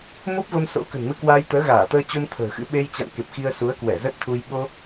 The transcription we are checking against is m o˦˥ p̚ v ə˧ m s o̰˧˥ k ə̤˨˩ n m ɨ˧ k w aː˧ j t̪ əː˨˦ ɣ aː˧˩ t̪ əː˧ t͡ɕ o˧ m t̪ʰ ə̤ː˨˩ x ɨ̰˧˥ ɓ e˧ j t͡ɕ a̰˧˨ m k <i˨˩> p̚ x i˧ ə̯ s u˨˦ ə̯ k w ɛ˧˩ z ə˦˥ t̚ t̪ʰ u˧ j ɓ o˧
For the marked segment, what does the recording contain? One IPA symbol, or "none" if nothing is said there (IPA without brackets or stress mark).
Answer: e˨˩